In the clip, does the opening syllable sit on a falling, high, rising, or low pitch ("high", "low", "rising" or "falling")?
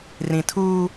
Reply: low